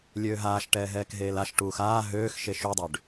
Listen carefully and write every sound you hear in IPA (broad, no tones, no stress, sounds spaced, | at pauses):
lʲ øː ɦ aː ʃ ʈ ɛː ɦ ɛː k ɦ eː l a ʃ ʈ uː x aː ɦ øː x ʃ e ʃ u dˤ ø ɖ